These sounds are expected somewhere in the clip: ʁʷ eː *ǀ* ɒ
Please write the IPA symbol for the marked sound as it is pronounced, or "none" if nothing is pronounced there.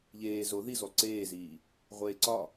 ǀ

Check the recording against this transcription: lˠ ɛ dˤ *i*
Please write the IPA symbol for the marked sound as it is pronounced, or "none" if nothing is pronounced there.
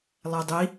i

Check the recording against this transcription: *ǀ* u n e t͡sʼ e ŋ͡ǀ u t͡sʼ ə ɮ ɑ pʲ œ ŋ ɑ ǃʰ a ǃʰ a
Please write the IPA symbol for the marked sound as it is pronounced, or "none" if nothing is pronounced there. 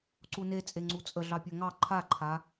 ǀ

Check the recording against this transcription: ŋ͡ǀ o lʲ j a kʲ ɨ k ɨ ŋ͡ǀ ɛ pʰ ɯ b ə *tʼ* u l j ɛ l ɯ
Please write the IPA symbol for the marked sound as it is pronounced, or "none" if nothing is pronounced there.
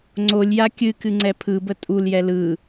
tʼ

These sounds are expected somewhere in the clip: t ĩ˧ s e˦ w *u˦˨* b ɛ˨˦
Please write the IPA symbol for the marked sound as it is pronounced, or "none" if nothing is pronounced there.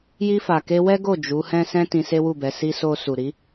u˦˨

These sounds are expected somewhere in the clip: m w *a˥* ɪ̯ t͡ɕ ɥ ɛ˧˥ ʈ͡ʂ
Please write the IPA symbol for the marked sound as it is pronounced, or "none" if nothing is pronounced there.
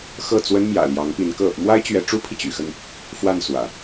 a˥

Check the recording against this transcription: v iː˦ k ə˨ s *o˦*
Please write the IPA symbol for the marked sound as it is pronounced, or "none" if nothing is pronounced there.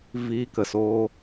oː˦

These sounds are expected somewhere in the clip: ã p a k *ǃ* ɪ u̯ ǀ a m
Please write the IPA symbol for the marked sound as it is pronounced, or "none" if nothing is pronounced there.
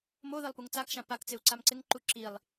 t͡s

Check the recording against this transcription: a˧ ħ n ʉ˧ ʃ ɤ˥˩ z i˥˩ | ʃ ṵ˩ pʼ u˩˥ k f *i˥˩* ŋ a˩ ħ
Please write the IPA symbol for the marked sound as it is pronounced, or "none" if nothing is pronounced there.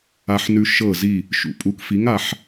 i˩˥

